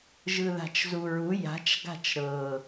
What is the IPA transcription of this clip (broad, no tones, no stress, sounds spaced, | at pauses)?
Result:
ʒ ɯ ð a̤ t͡ʃ z u ɹ u j a̤ t͡ʃ ɡ a̤ t͡ʃ ɾ ɤ